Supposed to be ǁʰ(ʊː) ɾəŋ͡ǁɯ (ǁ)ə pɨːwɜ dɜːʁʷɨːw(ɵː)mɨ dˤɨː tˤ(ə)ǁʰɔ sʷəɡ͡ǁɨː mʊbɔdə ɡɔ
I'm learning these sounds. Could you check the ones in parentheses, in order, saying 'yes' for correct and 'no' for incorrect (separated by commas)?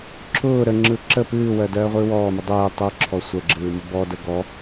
yes, yes, no, no